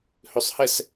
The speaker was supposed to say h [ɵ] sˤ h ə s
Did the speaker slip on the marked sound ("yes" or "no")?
no